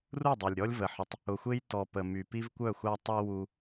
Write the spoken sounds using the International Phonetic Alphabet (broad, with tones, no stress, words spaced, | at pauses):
ru˦˨dˤɛ˨lʲɾʲɔ˦lʲ və˨ħʏ˨tˤ | ʊ˨xʷe˦j tɔ˨ pə˨my˨ pi˦vkʷœ˦˨xʷa˦ tˤi˦ wu˦